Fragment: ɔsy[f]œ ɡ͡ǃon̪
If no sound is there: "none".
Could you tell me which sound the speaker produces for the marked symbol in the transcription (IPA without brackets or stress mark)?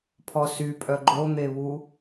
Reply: pʼ